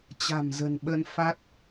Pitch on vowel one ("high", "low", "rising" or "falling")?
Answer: low